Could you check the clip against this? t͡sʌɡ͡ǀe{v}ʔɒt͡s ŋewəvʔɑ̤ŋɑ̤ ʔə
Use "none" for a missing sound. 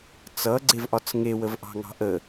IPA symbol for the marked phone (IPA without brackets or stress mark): v